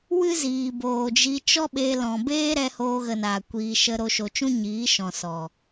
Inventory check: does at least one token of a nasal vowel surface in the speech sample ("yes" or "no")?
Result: yes